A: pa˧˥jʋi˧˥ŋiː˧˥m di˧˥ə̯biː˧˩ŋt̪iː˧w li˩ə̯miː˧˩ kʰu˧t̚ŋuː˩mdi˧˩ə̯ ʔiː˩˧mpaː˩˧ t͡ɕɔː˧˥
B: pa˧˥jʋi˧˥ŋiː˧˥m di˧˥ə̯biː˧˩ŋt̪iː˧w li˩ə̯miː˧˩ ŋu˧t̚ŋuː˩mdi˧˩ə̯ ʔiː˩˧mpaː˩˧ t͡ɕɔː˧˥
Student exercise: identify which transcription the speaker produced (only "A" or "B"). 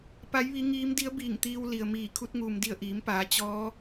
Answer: A